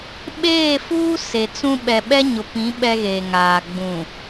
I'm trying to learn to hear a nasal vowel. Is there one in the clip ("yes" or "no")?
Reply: yes